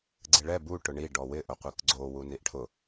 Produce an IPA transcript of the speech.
ɡ͡ǀ ɪ ɭ ɛ b u ʈ ʊ ɳ i ɖ ɔ w ɪ ʔ ʊ qʷ i k ɡ͡ǀ o w u n i ʔ ʈʰ ʊ

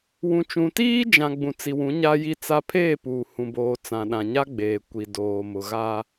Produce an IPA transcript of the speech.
w ũ˨ t͡ʃ ũ˨ t iː˦ d͡ʒ ã˨ ɡ͡b ũ˨ t͡s i˨ w ũ˨˦ ɲ a˦ j i˦ t͡s a˦ pʰ eː˦˨ p uː˨ h ũ˨ b oː˨ t͡s ã˨ ɗ ã˨ ɲ a˦ ɡ͡b eː˨ kʷ i˨ d oː˨ m ʊ˨ ɣ a˦

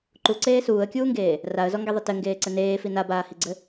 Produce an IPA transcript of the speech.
ǃ u ǀ eː s uː ə̯ kʲ uː ŋ ɡ eː | r a ə̯ z ɔ ŋ ɡ e ðˤ ɘ t ɘ ŋ ɡ eː ǀ ɘ n eː f i n a b aː h i ɡ͡ǀ ɘ

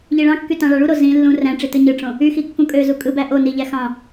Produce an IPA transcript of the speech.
ʎ i ɭ ɑ̃ kː y t ɑ̃ ɭ ɑ ɭ u ɾ o z ĩ lː ũ r æ̃ ʈ͡ʂ i t ɯ ɲ ɯ ʈ͡ʂ õ | y x i kː ũ kʼ ø z u kʼ ɯ b æ ʔ o n i ʎ æ x ɑ̃

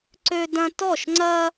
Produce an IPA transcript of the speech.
ǀ ø˥ d ɐ̃˥ t ɔ˥˧ ʃ ŋ͡ǀ ɐ˥

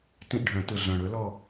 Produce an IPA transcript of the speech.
t ĩ˦˨ ʔ ɖʱ œ̃˨˩˦ t ɯ˨˩ ɮ œ̃˨˩ ɽ ɵ˨˥ l ɔ˦˨

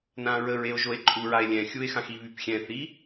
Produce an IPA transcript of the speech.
n ã ɹ ə ɹ e o̯ ʒ o e̯ ǃʼ u ɹ a e̯ lʲ ɛ̃ xʲ u e̯ x ã x i β y p xʲ ɛ̃ θ i

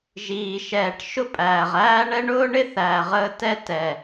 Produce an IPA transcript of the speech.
ʒ iː˨ ʃ ɛː˨ ʈ ʃ ʊ˦ pʼ æː˨ ʁ æː˦ ɳ ɛ˦ ɳ ʊː˦ ɳ ɪ˦ θ æː˨ ʁ əː˦ t ɛ˦ t ɛ˨

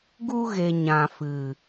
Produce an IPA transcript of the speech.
ɡ u˧ ɣ e˨ ɲ ã˨ f ɨ˨

